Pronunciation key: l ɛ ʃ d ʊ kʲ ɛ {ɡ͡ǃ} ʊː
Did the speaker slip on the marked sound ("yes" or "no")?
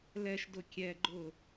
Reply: no